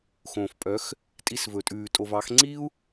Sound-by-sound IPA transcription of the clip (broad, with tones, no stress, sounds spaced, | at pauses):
x õː˨ f pʼ œ˨˦ x | tʼ i˧ s v ɵ˨ tʼ ʉː˨ tʼ o˨ v ɑ˨˦ x ŋ͡ǀ i˦ u̯